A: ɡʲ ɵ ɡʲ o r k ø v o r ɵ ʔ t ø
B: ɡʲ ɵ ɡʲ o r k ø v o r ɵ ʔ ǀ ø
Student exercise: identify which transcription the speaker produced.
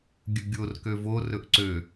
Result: B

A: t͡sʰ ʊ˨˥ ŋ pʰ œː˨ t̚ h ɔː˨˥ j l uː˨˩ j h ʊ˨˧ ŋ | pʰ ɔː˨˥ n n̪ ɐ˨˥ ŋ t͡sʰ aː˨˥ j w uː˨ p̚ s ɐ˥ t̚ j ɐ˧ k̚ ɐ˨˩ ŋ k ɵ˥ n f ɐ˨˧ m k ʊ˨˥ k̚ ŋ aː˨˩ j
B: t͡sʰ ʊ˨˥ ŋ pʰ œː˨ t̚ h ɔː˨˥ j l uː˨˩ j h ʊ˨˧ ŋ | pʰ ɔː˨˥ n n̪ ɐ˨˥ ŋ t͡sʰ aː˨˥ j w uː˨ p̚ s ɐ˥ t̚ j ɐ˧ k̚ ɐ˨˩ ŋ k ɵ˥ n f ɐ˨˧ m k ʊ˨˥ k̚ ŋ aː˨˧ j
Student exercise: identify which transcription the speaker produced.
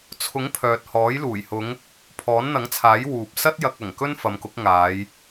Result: B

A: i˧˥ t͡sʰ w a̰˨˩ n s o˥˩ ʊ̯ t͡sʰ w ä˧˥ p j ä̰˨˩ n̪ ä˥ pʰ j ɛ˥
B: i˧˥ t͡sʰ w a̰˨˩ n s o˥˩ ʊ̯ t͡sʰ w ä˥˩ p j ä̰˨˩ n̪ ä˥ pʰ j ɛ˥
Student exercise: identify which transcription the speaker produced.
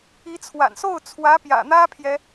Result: A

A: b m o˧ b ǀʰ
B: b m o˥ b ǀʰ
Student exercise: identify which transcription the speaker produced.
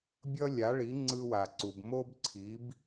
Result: B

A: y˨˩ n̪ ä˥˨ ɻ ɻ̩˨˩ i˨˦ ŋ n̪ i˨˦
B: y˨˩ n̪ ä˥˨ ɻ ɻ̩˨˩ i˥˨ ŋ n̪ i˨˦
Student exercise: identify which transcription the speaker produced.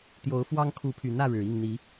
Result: B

